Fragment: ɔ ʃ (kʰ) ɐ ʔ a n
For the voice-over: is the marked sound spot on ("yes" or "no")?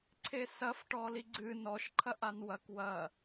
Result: no